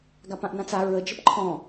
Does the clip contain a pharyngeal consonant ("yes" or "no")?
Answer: no